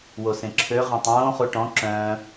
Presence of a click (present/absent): present